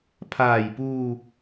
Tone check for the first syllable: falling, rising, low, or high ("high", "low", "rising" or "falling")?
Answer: low